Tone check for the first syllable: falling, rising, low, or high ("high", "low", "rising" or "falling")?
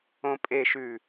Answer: low